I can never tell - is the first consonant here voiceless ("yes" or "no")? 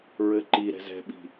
no